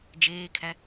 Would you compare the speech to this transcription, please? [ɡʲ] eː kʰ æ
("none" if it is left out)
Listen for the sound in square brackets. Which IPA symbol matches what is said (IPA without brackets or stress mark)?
d͡ʒ